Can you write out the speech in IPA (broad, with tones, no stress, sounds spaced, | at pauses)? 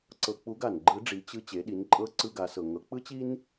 ǀ ɤ˧ k͡p u˧˥ ɡ a˩ n ɡ͡ǃ ɯ˧˥ ɖ͡ʐ i˩˧ t͡ɕ ɯ˧ t͡ɕ e˩˧ ɗ i˩˧ n ǃʼ ɤ˧˥ ǀ ɯ˧ ɡ a˩˧ s ɤ˩ ŋ ɤ˩˧ k͡p ɯ˥ t͡ɕ i˥ n